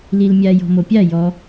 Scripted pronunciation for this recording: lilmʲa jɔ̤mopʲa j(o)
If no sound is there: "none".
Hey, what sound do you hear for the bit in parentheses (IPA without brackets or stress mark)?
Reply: ɔ